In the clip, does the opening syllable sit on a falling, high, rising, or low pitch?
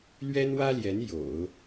high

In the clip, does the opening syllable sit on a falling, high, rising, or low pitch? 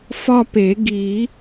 falling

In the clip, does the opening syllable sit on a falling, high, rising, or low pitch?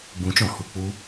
rising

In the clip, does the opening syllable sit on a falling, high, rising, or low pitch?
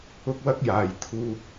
high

